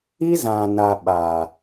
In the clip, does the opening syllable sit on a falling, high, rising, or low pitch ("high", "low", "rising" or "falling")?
high